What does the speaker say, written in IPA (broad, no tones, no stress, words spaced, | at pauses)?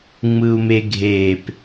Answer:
ŋ͡mɯu̯meɡʱep